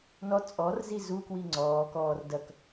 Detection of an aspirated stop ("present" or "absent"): absent